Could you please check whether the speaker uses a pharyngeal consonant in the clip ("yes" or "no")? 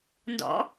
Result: no